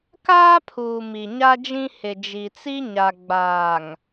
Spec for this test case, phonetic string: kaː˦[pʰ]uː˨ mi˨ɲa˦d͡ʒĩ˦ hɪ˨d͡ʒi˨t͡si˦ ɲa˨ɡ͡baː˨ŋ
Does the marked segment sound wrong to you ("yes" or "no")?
no